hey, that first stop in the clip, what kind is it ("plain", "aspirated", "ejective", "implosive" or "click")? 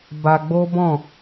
plain